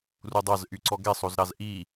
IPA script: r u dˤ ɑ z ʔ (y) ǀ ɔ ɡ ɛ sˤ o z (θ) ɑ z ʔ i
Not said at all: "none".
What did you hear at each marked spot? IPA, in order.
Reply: y, ɾ

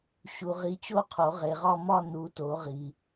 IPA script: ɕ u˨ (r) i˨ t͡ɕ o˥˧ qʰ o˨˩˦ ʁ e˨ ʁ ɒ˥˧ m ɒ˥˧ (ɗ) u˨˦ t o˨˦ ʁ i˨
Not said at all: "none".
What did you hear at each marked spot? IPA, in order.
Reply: ʁ, n

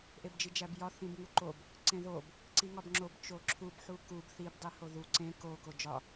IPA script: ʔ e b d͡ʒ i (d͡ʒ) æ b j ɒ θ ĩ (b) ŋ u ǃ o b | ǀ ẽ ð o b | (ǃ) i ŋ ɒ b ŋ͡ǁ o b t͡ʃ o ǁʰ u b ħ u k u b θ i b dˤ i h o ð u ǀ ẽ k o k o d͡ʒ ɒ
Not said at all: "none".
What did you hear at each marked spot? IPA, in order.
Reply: d͡ʒ, b, ǀ

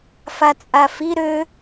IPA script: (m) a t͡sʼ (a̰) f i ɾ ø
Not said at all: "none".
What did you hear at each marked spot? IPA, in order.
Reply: f, a

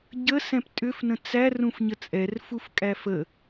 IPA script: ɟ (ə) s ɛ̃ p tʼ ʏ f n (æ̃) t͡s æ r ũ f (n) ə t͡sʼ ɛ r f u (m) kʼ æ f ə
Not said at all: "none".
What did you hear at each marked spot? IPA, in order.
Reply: ə, ə̃, ɲ, f

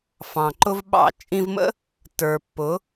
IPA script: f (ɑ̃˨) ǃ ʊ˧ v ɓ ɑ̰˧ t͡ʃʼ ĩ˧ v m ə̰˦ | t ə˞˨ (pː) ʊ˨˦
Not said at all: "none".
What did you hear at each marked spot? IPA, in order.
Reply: ɑ̃˨, pː

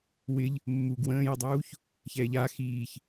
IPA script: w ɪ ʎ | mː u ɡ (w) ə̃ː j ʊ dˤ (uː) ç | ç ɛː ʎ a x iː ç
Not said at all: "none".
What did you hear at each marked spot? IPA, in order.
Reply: w, uː

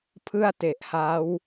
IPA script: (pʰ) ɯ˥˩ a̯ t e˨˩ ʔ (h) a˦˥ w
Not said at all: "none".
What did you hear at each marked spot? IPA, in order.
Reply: pʰ, h

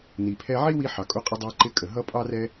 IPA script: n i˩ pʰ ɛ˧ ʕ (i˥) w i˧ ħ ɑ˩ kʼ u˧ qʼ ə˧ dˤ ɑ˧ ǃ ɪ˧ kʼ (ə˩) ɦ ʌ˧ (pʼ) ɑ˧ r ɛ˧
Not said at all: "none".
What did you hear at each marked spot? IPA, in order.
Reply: i˥, ə˩, pʼ

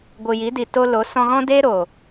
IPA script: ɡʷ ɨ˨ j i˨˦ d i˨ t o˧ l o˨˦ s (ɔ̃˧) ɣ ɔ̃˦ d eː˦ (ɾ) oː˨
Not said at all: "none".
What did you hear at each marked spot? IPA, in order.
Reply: ɔ̃˧, ɾ

